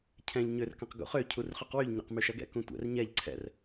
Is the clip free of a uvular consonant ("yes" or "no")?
no